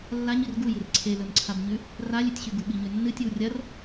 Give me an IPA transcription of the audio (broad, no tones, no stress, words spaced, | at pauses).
lːaɲir ɡujɨr ǀʰelɵmǀʰabɲʉ | ralʲʉtʲɕʉɡu ɓiɲʉnːɨtʲɨw rʲɐr